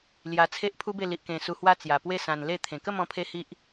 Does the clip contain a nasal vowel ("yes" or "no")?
yes